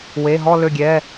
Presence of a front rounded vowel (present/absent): present